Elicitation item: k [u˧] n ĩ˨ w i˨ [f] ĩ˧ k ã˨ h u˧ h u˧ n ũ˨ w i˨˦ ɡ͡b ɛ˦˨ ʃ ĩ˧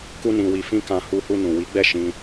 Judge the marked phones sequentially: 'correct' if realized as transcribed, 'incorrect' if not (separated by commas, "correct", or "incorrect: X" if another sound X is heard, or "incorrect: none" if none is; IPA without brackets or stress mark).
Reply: correct, correct